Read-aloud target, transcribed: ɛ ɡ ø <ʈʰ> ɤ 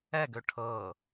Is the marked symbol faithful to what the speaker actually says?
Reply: yes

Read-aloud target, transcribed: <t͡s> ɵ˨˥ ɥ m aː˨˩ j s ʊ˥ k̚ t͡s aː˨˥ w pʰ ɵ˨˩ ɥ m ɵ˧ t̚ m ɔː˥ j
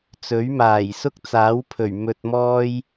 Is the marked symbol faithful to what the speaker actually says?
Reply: yes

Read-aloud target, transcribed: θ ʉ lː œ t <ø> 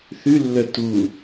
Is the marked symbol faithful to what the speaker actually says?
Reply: no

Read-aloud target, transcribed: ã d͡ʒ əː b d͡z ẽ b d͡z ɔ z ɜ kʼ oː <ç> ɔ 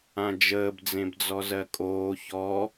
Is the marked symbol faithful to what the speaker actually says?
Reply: yes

